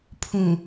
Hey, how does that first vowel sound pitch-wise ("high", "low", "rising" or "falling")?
low